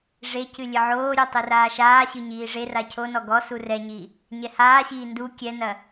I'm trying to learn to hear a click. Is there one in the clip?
no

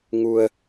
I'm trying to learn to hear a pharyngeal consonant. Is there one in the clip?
no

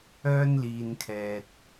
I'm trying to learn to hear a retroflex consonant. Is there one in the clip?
no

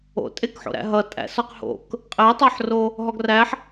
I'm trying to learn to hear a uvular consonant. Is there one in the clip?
yes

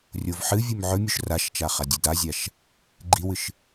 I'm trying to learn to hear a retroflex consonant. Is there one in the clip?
no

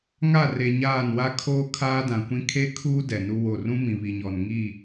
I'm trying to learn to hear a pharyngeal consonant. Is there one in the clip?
no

